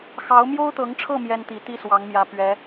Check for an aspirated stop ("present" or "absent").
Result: present